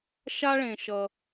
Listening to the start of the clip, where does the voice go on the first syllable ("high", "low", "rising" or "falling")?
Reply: high